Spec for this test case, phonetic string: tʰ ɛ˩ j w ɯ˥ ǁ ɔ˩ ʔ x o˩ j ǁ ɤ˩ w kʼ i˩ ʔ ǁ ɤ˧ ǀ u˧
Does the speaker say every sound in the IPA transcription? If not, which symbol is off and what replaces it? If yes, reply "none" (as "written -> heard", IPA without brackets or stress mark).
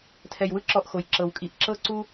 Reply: none